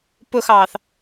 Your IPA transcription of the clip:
p ʊ x ɑː θ

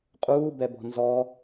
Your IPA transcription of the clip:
qʼ uː b ɛ b ɔ̤ n z ɔ

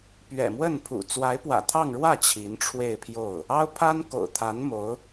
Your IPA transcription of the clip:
p ɥ ɛ̰˨˩ m w ə˥˩ n pʰ ṵ˨˩ t͡s w a˧˥ ɪ̯ p w ä̰˨˩ t̪ʰ ɑ˥˧ ŋ ɻ w ä˥˩ t͡ɕʰ i˧˥ n ʈ͡ʂʰ w e˥˧ ɪ̯ pʰ j o˥˩ ʊ̯ | ɑ˥ ʊ̯ pʰ a˥ n k o̰˨˩ ʊ̯ t̪ʰ a˧˥ n m o˧˥ ʊ̯

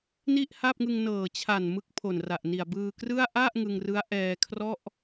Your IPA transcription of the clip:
n i˥˩ ʔ h a˥˩ p̚ ŋ ɯ˧ ŋ n ɤː˨˩ t͡ɕʰ a˨˩ n m ɯ˦˥ k̚ pʰ o˨˩ n r a˨˩ ʔ n i˨˩ a̯ b ɯː˧ k r ɯ˥˩ a̯ ʔ a˥˩ ʔ ŋ ɯ˧ ŋ r ɯ˦˥ a̯ ʔ ɛː˧ kʰ r ɔ˥˩ ʔ

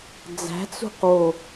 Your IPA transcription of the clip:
d͡z æ̤ t͡s ṳ q w o

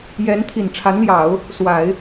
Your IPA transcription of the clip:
j ɛ˧˥ n t̪ʰ i˨˩ n ʈ͡ʂʰ a˧˥ n l j ɑ˨˩˦ ʊ̯ | s w a˨˩˦ ɪ̯

